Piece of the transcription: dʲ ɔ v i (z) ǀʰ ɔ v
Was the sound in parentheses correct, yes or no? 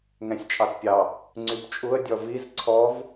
yes